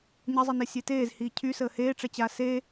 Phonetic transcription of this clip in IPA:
ɲəzˤinesʲe teːzhiː cʰysəː heːʈ͡ʂɛt͡ɕaː se

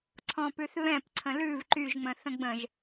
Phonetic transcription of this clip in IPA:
ǀʰɔ̃pʉθβɛ̃p ǀʰə̃lʉv ǃyʒŋ͡mə̃θə̃ ɡ͡bə̃ʒ

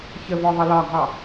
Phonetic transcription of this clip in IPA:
çəvɔ ðˤʌlɒɡʱɑ

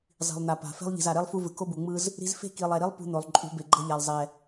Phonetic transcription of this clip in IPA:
zˤi̤˨lˠn̪a˨ pa̤˨ fe̤˦lˠʎi̤˨z a˨ɾe˦lˠ fu˦vɯ˨ ko˦bu˨ŋ͡mɯ˦z | ɾi̤˦z fe̤˦ki˨lˠɛ˨ɾi˦lˠ pṳ˦n̪o˨lˠ ǃʼṳ˨˦be˨ɡ͡ǃʌ˦ʎa˨lˠ zˤɛ˨

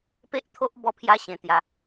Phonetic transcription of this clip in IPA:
pe˦ʔt̪ʰo˦ʔ bɔ˦pʰja˦ ɕẽ˧t̪ja˧

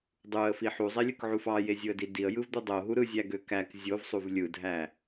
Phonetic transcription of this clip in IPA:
dˤuə̯fi ħuzˤelʲɯkʕuf ɑjezʲɯə̯di diə̯jɯvd̪ɯ dˤoɦu ɾɯzʲæɡø kæk zʲovsˤuv lʲɯdʱæ

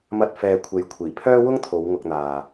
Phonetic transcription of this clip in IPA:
mɐ˧t̚ fɛː˨kʷʰe˨j kʷʰiː˨˩pʰœː˥ wʊ˥ŋt̪ʰo˨˧w ŋʊ˨k̚n̪aː˨

